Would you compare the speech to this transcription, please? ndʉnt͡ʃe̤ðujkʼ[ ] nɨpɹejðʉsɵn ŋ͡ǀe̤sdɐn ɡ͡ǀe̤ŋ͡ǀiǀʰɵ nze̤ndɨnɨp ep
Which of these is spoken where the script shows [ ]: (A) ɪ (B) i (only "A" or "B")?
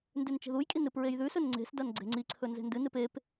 B